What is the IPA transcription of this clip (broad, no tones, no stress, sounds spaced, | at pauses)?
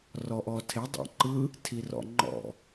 r ɔ ʔ ɔ tʰ e dˤ ɛ̰ ǃ ɯ | tʰ i r ɔ̰ ŋ͡ǃ ɔ̰